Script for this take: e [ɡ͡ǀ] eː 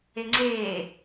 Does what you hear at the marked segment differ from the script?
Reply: yes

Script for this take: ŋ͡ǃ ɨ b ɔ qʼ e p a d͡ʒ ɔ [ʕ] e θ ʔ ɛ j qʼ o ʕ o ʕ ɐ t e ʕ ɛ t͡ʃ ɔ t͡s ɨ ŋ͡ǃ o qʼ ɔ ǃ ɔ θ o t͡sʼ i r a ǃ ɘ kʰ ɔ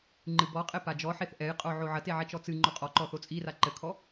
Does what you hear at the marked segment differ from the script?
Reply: yes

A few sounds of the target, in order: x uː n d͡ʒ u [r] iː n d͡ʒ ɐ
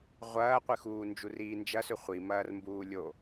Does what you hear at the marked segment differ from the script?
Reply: no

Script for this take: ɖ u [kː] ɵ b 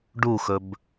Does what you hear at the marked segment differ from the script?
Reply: yes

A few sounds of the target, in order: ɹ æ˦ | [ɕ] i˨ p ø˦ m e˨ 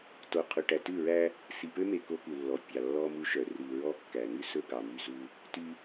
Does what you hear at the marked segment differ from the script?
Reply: yes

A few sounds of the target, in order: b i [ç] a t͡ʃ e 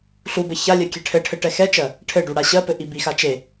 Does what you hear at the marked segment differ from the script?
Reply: yes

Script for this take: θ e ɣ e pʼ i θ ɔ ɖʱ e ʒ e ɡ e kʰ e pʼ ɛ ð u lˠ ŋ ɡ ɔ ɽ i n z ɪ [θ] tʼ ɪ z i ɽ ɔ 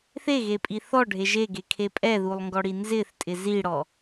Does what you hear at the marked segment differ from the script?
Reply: no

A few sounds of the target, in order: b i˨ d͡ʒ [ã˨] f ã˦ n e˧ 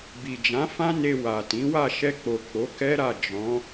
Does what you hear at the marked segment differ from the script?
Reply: yes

